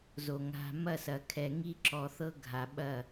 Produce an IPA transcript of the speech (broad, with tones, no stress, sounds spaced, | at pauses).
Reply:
z o˨ ŋ a̤˨ m ɐ˦˨ s ɐ˨ kʰ ɛ˨ ŋ i˦ ǁ ɔ˨ θ ɤ˦ ɡʱ a˨ ɓ ɐ˦˨